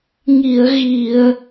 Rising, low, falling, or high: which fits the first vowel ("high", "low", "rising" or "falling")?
low